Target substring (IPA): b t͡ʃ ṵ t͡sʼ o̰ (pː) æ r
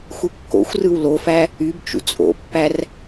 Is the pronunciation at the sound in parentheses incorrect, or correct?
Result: correct